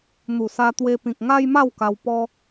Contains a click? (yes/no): no